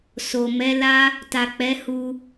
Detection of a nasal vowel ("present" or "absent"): absent